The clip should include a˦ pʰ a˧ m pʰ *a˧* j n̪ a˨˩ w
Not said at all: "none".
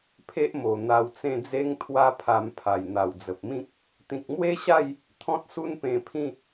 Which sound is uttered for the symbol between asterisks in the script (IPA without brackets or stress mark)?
a˨˩